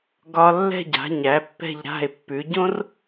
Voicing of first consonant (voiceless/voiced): voiced